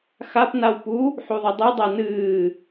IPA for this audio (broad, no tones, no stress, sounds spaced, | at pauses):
x a p n a w p u | ħ u ðˤ ɐ dˤ ɨ dˤ a n ɨː